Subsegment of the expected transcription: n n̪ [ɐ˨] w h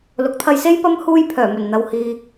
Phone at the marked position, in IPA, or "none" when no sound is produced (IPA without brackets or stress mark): ɐ˨